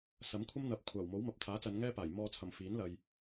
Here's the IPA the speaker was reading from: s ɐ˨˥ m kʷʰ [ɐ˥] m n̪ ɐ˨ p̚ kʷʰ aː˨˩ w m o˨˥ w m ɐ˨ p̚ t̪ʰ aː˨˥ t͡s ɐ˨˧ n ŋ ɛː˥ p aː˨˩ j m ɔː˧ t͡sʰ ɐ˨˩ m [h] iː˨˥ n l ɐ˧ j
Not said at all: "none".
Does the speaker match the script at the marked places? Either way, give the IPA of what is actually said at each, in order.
ɐ˥, f

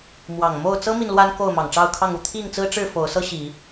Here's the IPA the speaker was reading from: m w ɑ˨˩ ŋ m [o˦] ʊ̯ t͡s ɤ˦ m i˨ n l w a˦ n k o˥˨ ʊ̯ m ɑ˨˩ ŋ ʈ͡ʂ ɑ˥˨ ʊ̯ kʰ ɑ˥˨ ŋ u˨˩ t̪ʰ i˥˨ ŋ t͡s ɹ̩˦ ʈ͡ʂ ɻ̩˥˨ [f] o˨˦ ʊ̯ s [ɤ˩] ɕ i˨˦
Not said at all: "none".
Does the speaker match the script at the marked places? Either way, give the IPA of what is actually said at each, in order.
o˥˨, f, ɤ˦

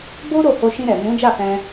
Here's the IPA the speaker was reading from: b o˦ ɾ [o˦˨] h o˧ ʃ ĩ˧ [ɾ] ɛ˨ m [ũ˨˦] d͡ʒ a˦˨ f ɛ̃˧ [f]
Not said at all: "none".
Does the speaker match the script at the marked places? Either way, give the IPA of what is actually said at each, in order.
o˦˨, ɾ, ũ˨˦, none

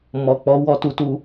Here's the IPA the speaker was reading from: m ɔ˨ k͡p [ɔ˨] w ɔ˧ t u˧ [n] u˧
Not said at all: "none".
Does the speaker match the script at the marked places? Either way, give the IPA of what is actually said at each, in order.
ɔ˨˦, t

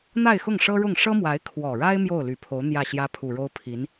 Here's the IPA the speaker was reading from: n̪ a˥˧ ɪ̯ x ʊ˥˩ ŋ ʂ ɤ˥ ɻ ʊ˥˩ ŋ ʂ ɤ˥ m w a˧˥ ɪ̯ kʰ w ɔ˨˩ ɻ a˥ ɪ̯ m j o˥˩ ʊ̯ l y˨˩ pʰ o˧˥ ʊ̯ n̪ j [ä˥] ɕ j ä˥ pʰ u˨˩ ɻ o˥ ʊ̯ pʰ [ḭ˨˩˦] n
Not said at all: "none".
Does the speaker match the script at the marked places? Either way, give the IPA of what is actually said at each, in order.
ä˥˩, i˧˥

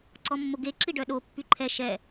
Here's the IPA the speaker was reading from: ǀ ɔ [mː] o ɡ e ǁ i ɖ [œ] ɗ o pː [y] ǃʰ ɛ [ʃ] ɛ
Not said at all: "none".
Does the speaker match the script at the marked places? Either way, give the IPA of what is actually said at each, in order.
mː, œ, y, ʃ

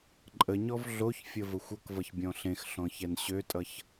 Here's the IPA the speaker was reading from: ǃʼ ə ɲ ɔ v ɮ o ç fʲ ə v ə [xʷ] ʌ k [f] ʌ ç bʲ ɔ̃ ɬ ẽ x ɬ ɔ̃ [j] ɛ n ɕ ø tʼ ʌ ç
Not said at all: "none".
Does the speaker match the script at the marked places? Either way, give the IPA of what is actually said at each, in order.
xʷ, v, ç

